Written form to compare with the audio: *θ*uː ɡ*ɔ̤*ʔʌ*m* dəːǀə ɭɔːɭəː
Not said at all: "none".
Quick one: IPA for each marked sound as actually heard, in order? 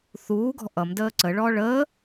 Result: θ, ɔ̤, m

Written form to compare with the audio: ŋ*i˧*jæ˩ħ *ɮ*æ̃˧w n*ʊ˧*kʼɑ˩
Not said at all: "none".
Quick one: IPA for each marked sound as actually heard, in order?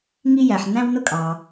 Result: i˧, n, ʊ˧

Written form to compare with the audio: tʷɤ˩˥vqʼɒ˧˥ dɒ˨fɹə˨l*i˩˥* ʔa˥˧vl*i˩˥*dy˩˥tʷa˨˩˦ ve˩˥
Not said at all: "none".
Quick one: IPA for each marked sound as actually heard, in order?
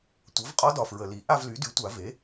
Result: i˩˥, y˩˥

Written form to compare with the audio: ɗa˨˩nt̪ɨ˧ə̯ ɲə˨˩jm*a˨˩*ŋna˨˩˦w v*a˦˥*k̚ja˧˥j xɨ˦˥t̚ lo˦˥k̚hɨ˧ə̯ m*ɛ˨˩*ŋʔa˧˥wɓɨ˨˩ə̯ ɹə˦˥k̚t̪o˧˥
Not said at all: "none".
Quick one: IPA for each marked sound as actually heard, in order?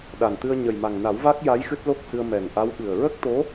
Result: a˨˩, a˦˥, ɛ˨˩

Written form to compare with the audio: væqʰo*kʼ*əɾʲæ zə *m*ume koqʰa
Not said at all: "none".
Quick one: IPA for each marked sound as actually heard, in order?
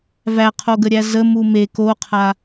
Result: ɡ, m

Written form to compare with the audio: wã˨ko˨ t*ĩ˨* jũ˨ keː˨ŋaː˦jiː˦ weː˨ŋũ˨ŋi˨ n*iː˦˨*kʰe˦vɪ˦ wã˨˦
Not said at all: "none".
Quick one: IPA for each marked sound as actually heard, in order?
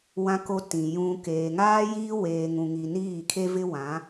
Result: ĩ˨, iː˦˨

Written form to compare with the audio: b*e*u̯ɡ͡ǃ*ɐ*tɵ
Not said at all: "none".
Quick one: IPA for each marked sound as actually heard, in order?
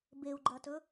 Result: e, ɐ

